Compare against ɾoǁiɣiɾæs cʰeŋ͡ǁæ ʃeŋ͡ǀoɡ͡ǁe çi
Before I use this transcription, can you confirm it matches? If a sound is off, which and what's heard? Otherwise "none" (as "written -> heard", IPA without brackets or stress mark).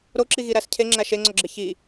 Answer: none